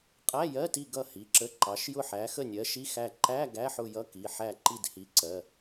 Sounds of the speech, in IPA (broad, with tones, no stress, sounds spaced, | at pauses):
qʼ æ˧˥˧ j ɜ˧˥˧ t i˦˨ ɡ ʌ˦˨ h i˩˧˩ ǁ ə˧˥˧ ǃ ɑ˨˦ ʃ j ʊ˦˨ ħ æ˨˦ x ə˦˨ nʲ ɜ˨˦ ʃ i˧˥˧ x æ˦˨ ǃ æ˧˥˧ ɡ æ˧˥˧ ħ ʊ˦˨ j ʌ˧˥˧ k i˩˧˩ ħ æ˦˨ ǃ i˦˨ d h i˨˦ ǀ ɜ˩˧˩